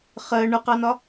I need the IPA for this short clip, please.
χ ɜ ɳ ʊ q ɑ n ɒ

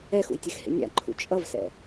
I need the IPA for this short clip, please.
ɛ x ṵ j tʲ ɛ x h ḛ nʲ a̰ ǃʰ ṵ t͡ʃʼ ʌ v s ɛ̰

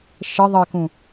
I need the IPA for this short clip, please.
ʃ ə ðˤ ə k ũ

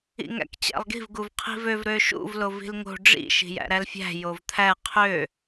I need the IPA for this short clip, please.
ḭ ŋ æ̰ k t͡ɕ æ̰ lˠ ɡ i̤ v ɡ u v qʰ i̤ v ø v ɾ ø ʃ ṵ v l o v i̤ l ŋ o̤ ɖ͡ʐ ḭ ʃ i̤ j æ̰ ɾ æ l fʲ æ̤ j o v t̪ʰ æ qʰ ø

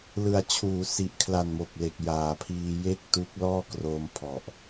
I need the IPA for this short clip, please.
l ɯ˨˩ a̯ t͡ɕʰ uː˩˦ s i˨˩ ʔ kʰ l a˨˩ n m o˨˩ k̚ l e˨˩ k̚ j aː˩˦ pʰ iː˧ j e˥˩ k̚ t u˦˥ k̚ l ɔː˥˩ k r o˧ m pʰ ɔ˨˩ ʔ

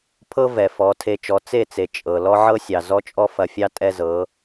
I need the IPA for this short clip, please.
pʰ ɤ˦ v ɛ˨ f ɔ˨˦ tʰ e˧ t͡ʃ ɔ˨˦ t͡s e˦˨ t͡s e˨ t͡ʃʼ ɤ˨ l ɔ˦ ʕ ɤ˦ sʲ ɑ˨ z ɔ˦ t͡ʃʼ ɔ˦ f ɐ˨ fʲ ɑ˦ tʼ ɛ˦ z ɤ˨˦

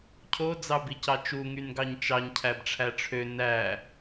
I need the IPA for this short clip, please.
cʰ o d͡z ɑ b i c ɑ t͡ʃ u ŋ y n ɡ ɑ ɲ t͡ʃ ɑ ɲ cʰ æ b ʈ͡ʂʰ æ ʈ͡ʂʰ ø n æ

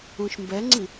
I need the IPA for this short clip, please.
ũ ʃ m b ɛ ŋ͡ǀ i

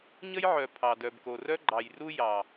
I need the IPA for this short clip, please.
ɲ ə˦ j ʕ œ˨ pʰ ɑ˨ d œ˨ b k o˨ r œ˦ ɡ͡ǃ ɑ˨ j r u˦ j ɑ˨

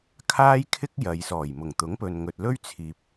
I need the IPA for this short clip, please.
kʰ aː˥ j kʰ ɪ˥ k̚ j ɐ˨ j s ɔː˨˩ j m ʊ˨˩ ŋ t̪ ʊ˨˥ ŋ p ɵ˨ n ŋ ɵ˨ t̚ l ɵ˥ ɥ t͡sʰ iː˨ p̚

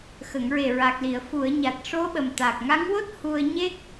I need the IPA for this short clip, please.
x ə˨˩˨ ŋ ɹ e˨˩ ɹ a˨˩ k̚ l i˨˩˨ ə̯ f u˨˩˨ ə̯ ɲ a˨˩ t̚ ʂ o˧˥ ɓ ə˨˩ m t̪ a˨˩ k̚ ŋ a˧˥ ŋ w o˦˥ t̚ h u˧ ə̯ ɲ e˦˥ k̚

